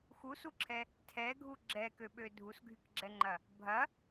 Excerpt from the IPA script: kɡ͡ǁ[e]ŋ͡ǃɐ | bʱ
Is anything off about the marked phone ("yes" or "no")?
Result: yes